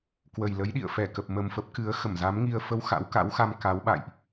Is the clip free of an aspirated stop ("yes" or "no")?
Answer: yes